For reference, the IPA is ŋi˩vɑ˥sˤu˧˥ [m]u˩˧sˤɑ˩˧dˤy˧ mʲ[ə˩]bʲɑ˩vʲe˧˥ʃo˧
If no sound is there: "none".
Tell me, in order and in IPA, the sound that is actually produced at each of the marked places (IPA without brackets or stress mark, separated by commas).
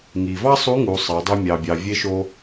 ŋ, ɑ˩